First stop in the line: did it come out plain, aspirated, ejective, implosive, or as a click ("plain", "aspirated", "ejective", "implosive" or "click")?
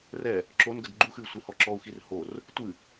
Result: click